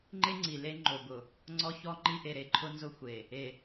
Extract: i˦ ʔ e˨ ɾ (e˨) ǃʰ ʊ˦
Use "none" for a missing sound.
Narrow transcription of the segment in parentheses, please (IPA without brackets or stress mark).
e˨